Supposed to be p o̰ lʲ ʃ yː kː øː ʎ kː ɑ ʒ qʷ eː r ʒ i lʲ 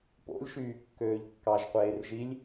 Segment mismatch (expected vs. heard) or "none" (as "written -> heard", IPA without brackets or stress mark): none